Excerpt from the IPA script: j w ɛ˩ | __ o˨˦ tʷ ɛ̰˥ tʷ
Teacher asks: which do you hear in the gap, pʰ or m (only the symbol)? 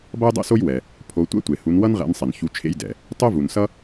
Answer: pʰ